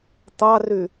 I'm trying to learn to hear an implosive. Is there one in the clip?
no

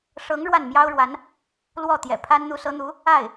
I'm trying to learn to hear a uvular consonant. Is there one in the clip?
no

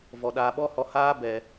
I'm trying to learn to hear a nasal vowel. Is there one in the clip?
no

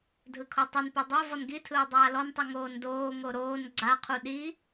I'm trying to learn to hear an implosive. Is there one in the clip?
yes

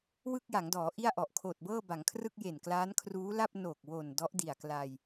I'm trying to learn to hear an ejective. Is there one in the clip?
no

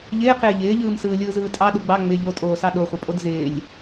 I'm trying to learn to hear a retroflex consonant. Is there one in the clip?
no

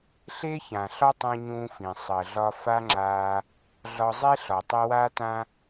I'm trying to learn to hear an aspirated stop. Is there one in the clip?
no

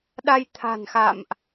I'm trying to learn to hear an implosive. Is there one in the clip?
yes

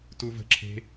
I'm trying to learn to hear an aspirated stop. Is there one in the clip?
yes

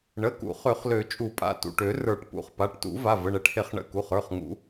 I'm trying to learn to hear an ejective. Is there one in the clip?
yes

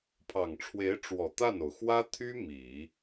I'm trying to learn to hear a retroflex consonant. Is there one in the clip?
yes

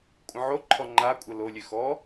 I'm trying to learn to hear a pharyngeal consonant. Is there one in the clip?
yes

